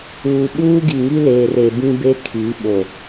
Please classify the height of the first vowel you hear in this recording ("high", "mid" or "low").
high